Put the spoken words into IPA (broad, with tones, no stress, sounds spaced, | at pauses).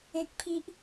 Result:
ẽ˦ k̚ pʰ i˦ ʔ